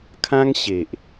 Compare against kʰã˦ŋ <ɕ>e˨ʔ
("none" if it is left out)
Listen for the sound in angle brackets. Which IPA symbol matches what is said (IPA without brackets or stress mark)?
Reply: ɕ